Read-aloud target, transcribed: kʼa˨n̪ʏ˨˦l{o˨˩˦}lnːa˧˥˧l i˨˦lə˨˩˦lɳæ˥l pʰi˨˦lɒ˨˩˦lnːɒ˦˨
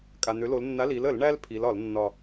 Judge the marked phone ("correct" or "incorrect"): incorrect